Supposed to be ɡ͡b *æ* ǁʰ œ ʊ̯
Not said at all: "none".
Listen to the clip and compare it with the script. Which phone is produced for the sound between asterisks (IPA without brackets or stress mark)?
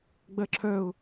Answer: ɜ